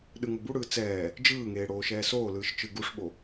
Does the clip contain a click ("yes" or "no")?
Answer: no